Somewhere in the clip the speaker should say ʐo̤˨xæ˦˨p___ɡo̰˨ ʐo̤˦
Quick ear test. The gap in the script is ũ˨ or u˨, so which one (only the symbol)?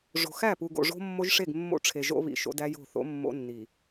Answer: u˨